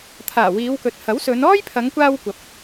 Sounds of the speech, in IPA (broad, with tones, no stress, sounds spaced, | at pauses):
t̪ʰ aː˨˩ w iː˨˧ w k ɵ˨ t̚ h ɐ˨˥ w s ɵ˨˧ n ɔː˥ j pʰ ɐ˨˧ ŋ kʷ aː˧ w kʷ ɐ˨ p̚